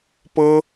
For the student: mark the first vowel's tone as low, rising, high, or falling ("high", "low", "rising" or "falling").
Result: high